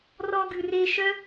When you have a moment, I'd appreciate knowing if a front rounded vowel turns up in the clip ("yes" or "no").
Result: yes